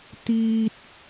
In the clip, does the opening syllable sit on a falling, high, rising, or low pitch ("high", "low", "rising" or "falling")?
high